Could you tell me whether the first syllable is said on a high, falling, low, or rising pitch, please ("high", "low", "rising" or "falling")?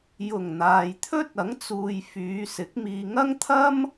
low